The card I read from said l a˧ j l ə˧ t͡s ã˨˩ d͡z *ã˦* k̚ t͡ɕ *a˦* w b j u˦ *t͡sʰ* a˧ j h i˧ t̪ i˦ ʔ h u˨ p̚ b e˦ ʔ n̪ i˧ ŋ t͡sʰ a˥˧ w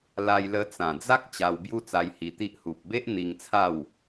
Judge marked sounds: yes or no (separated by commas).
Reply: no, no, no